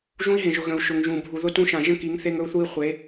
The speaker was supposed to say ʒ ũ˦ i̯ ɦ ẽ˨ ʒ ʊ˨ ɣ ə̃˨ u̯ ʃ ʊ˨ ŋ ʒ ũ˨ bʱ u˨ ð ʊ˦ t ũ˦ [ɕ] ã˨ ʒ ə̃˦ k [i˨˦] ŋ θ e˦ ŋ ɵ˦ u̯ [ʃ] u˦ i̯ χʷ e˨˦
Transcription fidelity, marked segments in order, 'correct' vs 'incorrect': incorrect, correct, incorrect

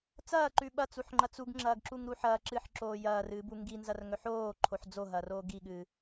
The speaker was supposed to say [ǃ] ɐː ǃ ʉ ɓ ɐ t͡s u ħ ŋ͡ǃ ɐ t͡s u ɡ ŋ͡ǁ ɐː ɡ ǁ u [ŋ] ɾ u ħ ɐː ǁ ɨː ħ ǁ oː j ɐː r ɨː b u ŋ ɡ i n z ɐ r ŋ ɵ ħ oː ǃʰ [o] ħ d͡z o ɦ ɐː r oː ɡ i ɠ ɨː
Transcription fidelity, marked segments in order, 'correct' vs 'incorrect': incorrect, correct, correct

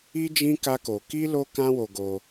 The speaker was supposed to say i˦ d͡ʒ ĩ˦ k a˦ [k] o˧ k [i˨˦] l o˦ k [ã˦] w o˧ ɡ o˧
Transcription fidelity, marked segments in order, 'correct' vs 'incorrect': correct, incorrect, correct

